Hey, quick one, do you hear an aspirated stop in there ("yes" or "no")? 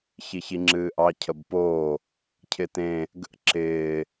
yes